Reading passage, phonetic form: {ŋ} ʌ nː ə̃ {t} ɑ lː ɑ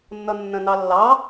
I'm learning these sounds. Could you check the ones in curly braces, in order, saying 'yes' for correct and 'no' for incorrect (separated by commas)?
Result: no, no